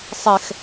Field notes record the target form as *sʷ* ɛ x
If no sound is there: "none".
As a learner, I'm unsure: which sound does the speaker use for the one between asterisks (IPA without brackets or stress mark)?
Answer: sˤ